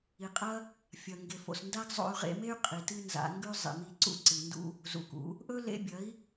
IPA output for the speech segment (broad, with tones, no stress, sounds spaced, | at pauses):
i˨ qʼ ɐ˦ | fʲ ɐ˨ ŋ ɡ e˨ f o̰˨ s n d a˦ ɡ zˤ o̰˧ y̯ ʁ ḛ˧ m e˦ y̯ qʼ i˨ t ɨ˦ n z a̰˧ ŋ ɡ ʉ˦ zˤ ḭ˨ m i˧ ǀ ṵ˦ ǀ ɨ˨ n d ṵ˦ | z ṵ˨ k ṵ˨˦ | ʔ ɵ˦ l ḛ˧ bʲ ɐ˨˦ i̯